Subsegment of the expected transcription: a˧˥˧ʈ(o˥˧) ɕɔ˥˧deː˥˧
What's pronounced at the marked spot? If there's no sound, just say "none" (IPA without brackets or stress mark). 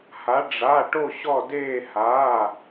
o˥˧